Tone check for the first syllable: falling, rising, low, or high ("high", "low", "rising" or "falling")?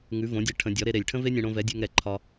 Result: rising